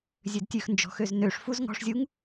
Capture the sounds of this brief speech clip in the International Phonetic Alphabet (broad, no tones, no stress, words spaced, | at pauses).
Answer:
zʲødtʲʉxnd͡ʒɔ̤xøz nøʂ fuz ŋɔ̤ʂzʲuŋ